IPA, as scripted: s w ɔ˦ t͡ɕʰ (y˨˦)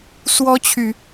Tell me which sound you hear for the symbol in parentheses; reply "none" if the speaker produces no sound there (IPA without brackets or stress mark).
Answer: y˨˦